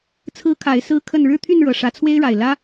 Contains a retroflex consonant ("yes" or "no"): yes